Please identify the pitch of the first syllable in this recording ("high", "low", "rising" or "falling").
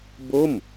falling